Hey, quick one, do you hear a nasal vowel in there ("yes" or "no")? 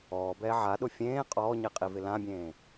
yes